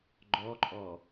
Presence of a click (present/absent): present